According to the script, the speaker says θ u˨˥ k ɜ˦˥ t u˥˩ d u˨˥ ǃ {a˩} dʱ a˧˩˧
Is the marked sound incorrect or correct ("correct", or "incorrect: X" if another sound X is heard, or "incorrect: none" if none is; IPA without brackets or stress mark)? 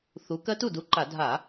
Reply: incorrect: a˧˩˧